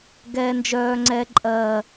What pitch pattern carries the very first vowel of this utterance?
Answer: low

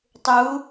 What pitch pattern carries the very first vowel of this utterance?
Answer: rising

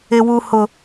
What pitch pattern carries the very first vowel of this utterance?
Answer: low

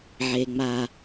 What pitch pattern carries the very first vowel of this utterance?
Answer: high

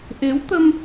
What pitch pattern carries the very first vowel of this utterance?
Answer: rising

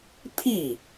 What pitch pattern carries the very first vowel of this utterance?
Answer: falling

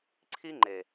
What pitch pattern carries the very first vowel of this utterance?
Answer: high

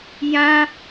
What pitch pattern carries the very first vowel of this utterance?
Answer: high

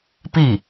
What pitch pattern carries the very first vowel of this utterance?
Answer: falling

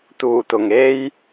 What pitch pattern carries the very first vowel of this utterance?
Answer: low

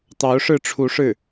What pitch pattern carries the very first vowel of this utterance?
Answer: rising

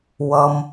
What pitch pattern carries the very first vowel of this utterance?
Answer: low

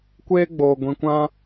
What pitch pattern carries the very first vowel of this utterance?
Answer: high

